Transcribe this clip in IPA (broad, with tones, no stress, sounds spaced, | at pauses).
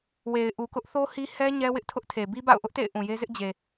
w e˨ ɪ̯ ʔ u˨ k ʊ˦ ʔ θ o˦ h i˦ h ɛ˦ ɲ ɛ˦ w ɪ˦ ʔ tʰ ʊ˦ ʔ tʰ e˨ b i˦ b a̰˦˨ ʊ̯ ʔ ʊ˦ ʔ t ḛ˦˨ ɪ̯ ʔ ũ˨ j e˦ z ɪ˦ ʔ d͡ʑ e˨